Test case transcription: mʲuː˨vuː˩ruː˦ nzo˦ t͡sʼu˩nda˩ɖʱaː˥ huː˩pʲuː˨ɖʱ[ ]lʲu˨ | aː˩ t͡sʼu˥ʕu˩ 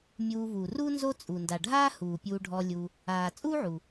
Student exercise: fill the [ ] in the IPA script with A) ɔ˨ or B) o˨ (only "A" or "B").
A